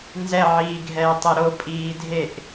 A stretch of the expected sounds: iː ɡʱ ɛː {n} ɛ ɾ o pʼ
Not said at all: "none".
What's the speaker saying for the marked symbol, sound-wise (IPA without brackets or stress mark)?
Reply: tˤ